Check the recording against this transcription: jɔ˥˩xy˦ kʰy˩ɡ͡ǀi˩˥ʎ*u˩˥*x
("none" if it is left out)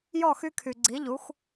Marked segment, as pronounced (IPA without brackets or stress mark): u˩˥